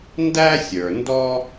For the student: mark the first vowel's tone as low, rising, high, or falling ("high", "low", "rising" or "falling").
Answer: high